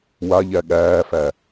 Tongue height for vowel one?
low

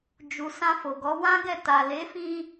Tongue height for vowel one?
high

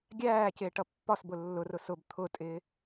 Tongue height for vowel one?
low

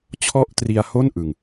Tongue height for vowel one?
mid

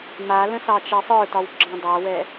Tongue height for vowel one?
low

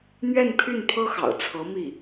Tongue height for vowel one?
mid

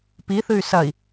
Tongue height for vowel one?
high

